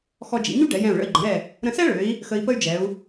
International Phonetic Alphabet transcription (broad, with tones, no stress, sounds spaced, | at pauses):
x ɔ˧ d͡ʒ ḭ˩˧ ɲ y˥ ɖ ɛ˩˧ j ɛ̃˧˩ u̯ ɭ ə̰˧˩ i̯ ɡ͡ǃ ə̃˩˧ ɾ ɛ˧˩ | ɾ ə̃˧ s ɛ˥ ɭ ø˩˧ i̯ | x ə˧ i̯ p ə˥ y̯ d͡ʒ ɛ˩˧ u̯